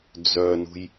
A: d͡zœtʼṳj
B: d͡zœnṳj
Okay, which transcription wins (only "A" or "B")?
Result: B